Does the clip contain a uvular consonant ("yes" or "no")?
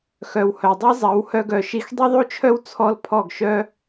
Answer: no